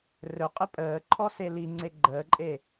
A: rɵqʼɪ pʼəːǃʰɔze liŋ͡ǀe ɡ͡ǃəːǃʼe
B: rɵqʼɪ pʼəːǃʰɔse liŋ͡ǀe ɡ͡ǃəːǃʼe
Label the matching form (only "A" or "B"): B